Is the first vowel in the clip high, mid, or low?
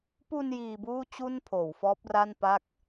high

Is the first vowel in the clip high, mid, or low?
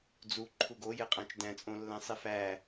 high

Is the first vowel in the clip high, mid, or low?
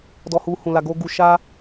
mid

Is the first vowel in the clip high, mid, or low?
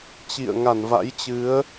high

